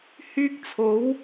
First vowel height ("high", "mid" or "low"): high